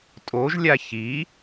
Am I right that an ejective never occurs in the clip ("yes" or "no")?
no